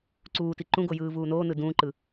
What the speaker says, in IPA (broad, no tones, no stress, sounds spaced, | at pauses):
ǀ uː t i ǃ ũ ɡ o j ɯː v uː n oː n ɯ d ũː ǃ ɯ